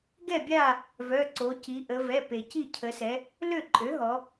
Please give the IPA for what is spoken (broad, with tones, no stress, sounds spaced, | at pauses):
ɡ ɛ˥˨ bʲ a˥˨ | v œ˩˧˩ ǀ o˩˧ c i˩˧ ʔ ə˩˧ v ɛ˩˧˩ p e˩ c i˥˨ cʰ ə˩˧ s ɛ˩˧ | l ø˥˨ ǃʼ ø˩˥ ɦ ɔ˩˧